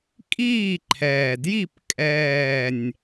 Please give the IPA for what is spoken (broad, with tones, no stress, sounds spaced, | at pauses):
kʼ iː˥˨ ǃʰ ɛː˨˩ d j i˥˨ p kʼ ɛː˥˨ nʲ